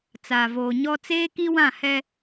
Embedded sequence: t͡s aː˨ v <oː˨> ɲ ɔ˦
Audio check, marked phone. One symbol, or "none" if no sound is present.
oː˨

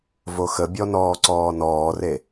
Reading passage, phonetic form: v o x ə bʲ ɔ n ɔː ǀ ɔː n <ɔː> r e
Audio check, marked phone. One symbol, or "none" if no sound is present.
ɔː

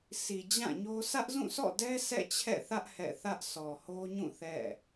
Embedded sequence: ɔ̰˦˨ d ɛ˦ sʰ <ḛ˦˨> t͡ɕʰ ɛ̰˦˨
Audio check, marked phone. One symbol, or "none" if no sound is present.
ɛ̰˦˨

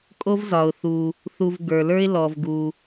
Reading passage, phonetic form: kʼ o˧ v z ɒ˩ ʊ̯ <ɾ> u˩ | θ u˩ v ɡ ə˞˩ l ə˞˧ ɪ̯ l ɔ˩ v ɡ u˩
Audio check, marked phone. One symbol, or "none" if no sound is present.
θ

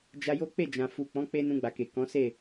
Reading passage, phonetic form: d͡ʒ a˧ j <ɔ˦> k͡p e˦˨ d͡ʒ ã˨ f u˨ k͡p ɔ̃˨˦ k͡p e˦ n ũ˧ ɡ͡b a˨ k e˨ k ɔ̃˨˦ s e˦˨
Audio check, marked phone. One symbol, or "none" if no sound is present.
o˦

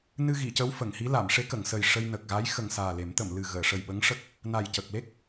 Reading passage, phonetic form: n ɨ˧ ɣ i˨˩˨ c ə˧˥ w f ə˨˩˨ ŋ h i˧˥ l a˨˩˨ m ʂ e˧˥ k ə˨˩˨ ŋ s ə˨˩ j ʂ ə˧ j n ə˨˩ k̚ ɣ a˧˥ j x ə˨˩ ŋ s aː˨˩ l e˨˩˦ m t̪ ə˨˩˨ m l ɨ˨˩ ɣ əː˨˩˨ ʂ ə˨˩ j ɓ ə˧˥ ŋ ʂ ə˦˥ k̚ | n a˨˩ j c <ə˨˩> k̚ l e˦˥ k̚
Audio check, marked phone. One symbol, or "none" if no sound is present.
ə˨˩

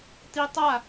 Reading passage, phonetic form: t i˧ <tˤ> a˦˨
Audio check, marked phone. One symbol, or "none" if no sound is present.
tˤ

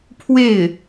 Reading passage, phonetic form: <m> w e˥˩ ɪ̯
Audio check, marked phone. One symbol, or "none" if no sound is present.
pʰ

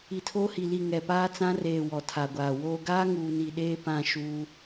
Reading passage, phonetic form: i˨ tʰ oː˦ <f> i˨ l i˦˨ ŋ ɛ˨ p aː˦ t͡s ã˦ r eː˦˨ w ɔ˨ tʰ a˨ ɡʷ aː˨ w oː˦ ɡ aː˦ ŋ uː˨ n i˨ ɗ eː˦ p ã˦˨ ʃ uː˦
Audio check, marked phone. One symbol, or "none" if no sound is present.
h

